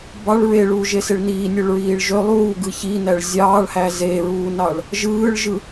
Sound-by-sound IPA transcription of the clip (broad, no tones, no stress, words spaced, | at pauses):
bɑɭ ɹeɭuːʒeseɭ niːnʲøɭɹiːɭ ʒø lˠuːɡɯ çinæɭ zʲɑːɭhæ zeɹuːnɑɭ | ʒɯːɭʒɯ